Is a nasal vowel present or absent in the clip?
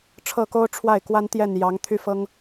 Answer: absent